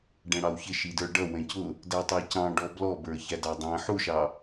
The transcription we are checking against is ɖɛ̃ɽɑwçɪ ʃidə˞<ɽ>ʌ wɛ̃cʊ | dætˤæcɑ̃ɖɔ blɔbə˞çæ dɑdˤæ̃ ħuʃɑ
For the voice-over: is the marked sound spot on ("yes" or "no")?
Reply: no